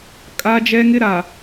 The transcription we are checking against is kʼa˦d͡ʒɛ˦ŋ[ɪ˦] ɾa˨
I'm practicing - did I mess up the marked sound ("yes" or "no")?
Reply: no